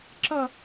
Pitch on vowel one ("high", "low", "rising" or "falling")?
falling